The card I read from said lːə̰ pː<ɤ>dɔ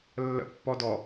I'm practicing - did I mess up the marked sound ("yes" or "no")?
yes